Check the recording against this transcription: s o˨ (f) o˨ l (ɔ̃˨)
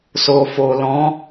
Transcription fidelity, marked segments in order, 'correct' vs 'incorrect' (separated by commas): correct, incorrect